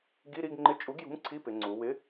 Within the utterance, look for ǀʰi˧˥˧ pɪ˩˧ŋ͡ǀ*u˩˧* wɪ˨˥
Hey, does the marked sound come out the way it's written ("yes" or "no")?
yes